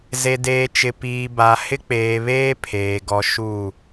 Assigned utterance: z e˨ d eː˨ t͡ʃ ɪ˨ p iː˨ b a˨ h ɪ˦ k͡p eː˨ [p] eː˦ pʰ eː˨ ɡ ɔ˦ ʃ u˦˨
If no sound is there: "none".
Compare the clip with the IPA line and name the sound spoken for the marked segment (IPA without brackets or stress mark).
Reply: β